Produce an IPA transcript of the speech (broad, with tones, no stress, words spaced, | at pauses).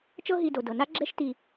t͡ʃɤ˦ɦi˨do˩ dɤ˩na˥ɡ͡ǁɛ˦ʃ ti˨